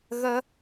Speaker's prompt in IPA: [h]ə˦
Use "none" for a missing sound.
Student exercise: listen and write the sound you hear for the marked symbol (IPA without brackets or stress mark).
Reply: ɣ